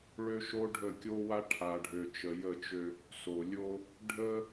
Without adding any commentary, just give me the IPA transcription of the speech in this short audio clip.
ɭ ø˦ ʃ o˦ ɖʱ ə˦˨ kʲ o˦ w a˦ ʈʰ a˨ ɖʱ ø˨ t͡ʃ ə˨ j ə˦˨ t͡ʃ ø˦ | s o˨ lʲ o˦ | ɖʱ ə˦

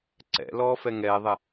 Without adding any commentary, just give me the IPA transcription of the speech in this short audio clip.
ǀ ɛ̰ l ɔː f ɛ ŋ ɛː ðˤ ɛ

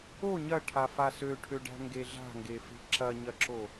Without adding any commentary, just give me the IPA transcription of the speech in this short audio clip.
o ɲ ɐ ʈʰ a f a s ø ʈʰ ø ɖ æ̤ ŋ ɡ e ɮ a̤ ŋ ɡ e f e̤ ǁ ɐ ɲ ɐ ǁ o

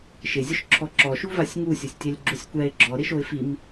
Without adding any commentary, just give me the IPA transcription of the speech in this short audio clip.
ʃ ɪ zʲ ʊ ʃ ǁʰ ɔ ǁ ɔ ʃ u v a sʲ ŋ u sʲ ʊ sʲ tʲ ɛ lʲ ɡ͡ǁ u sʲ kʷ ɛ ɪ̯ ɡ͡ǁ ɔ ɾ ɪ ʃ o ɪ̯ f i m

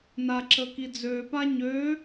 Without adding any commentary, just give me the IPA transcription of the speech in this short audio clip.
n a ǁ ə k i d͡z ø p a ɲ ø

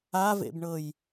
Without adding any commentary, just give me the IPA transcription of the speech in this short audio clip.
a v ḛ b ɳ ɤ j

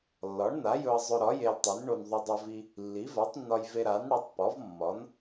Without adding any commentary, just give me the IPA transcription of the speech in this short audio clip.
lː ɒ˩˥ ɳ n a˩˥ j ɵ˧ ɐ̯ zˤ ɵ˧ ɾ ɒ˩˥ j e˧ l tˤ i˩˥ n ɳ o˧ n ðˤ ɵ˧ dˤ ɵ˧ v i˧ | lː i˩˥ v a˩˥ tˤ nː ɒ˧ j v e˧ ɾ a˩˥ n ɽ ə˩˥ tˤ p ɒ˩˥ v mː ɒ˩˥ n

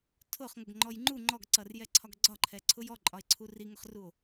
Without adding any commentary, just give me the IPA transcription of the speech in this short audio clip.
tʰ ʊ χ ŋ ʊ ɡ ŋ͡ǃ ɔ j ŋ͡ǃ u ŋ͡ǃ ɔ ɡ ǀ ʌ r j ɛ ǀʰ ɒ ɡ ɡ͡ǀ ɒ ǃʰ ɛ ǀʰ ʊ j ɔ ǃʼ ɒ e̯ ǀʰ u r i ŋ ʊ χ r u o̯

